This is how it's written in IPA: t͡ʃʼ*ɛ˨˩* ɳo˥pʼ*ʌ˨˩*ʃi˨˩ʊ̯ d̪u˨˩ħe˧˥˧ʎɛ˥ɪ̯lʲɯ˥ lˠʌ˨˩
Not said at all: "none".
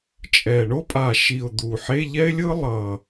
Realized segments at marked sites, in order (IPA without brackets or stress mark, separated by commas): ɛ˨˩, a˨˩